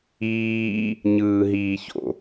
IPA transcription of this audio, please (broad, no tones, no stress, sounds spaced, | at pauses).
iː | ɲ ɯː ɦ iː ç o̰